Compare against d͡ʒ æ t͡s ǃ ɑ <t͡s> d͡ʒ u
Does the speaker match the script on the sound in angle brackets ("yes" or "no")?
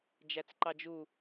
no